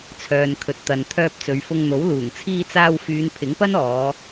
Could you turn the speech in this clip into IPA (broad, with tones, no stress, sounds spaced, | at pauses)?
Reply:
t͡sʰ œː˨ n kʰ ɵ˨ t̚ t̪ ɐ˨ n t̪ʰ œː˧ p̚ t͡s ɵ˨˧ ɥ f ʊ˧ ŋ n̪ o˨˥ w l uː˨˩ ŋ t͡sʰ iː˧ t͡s aː˧ w f yː˨˧ n pʰ ɪ˨˥ ŋ p ɐ˥ n ɔː˨˧